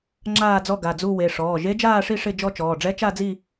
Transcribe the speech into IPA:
ŋ͡ǁ aː˥˧ d͡z ɔ˥˧ ɡ a˩˧˩ d͡z u˥˧ w e˩˧˩ ʂ ɔː˩˧˩ ʒ e˦˥ d͡ʒ aː˥˧ ʂ i˥˧ ʂ ɪ˥˧ d͡ʒ ɔ˥˧ t͡ʃ ɔː˩˧˩ ɖ͡ʐ ɛ˦˥ t͡ʃ a˥˧ d͡z i˥˧

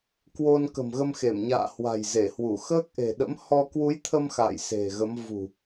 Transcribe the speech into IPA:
k w o˧ n k ə̤˨˩ m ɣ ə˧ m x e˧˩ m ɲ a̰ː˧˨ h w a̤˨˩ j z e˧˩ h w u˧˩ x əː˦˥ k̚ ʔ e̤˨˩ ɗ ə̰˧˥ m h ɔ˧ k w u˨˦ j t̪ʰ ə˧ m x a̰ː˧˨ j s e̤˨˩ ɣ ə˨˦ m v ṳ˨˩

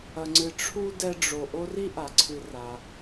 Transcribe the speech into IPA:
ɐ˨ ŋ͡ǀ ɨ˨ ʈ͡ʂʰ u˥ d ɛ˦ ɖ͡ʐ o˨ ʔ o˦ r i˥ ʔ a˩ ǀʰ ɨ˨ r a˩

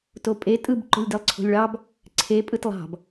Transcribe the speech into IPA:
t o pʼ e tʼ ɯ b ǃ o̤ lʲ d i lˠ ǀʰ o̤ lʲ ɭ ɑ b | ǀʰ e pʼ ɯ t lˠ ɑ̤ b

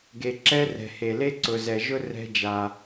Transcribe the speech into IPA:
ɡ e˨ ǁ ɛ˦ r ɛ̤˨ h e˨ l e˦ ǀ ʊ˨ z ɛ˨ ʒ ʊ˦ r ɛ̤˦ d͡ʒ a˦

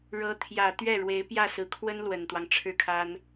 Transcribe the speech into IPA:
ɻ ɤ˧˥ t̪ʰ j ä˨˩ t̪ ɥ ɛ˥˩ ɻ w e˧˥ ɪ̯ p j ä˥˩ s ɹ̩˨˩ kʰ w ə˥ n l w ə˨˩ n t̪ w ɑ˦ ŋ ʈ͡ʂʰ ɻ̩˥˩ kʰ a˥ n

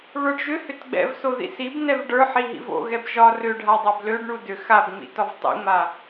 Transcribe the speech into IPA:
β ə˞ ɖ ʒ ʏ h ʏ t ɡ͡b ɛ̰ v s o ð ḭ s i b n ɛ v ɖ ə˞ ħ i ɦ ḭ v o̰ ɣ ɛ b ʒ ɒ r ʏ ɖʱ a dˤ a b l ø ɖ ɳ u d ʏ x a b ŋ͡m ḭ t ɒ v tˤ ḭ ŋ͡m a

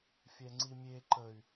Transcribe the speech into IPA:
fʲ ɛ ŋ͡ǀ i mʲ e ǃ ə y̯

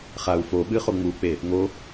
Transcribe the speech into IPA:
χ a u̯ f o ɓ ɨ χ o ŋ͡m u k͡p e | ŋ o

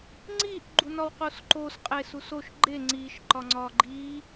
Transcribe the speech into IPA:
ŋ͡ǀ i ʔ ɡ͡ǃ u n ɒ w q o s ǃ o s qʼ e s u s o ʃ ɡ͡ǃ e ŋ͡ǀ i ʃ ǃ ɒ ŋ͡ǀ ɒ ɡ͡ǃ i

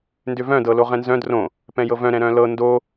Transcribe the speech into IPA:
n d ʏ v œ̃ d ɤ l o ʁ ɛ̃ n z œ̃ d r õ | p ɛ̃ j ɤ v œ̃ ɾ ɛ̃ ɾ œ̃ l ɤ n d o

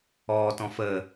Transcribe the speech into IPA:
ɔː t ɔ̃ f əː

